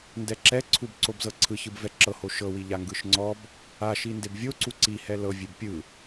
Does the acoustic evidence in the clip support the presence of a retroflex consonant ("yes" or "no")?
no